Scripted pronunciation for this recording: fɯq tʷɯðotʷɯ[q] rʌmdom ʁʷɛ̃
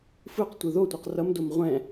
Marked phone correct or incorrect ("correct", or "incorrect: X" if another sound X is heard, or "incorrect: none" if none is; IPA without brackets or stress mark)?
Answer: correct